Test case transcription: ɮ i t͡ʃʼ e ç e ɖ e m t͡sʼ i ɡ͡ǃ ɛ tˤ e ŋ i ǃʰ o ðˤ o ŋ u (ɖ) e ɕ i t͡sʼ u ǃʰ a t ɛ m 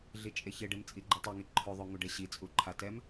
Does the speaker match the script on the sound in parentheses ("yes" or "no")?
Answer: yes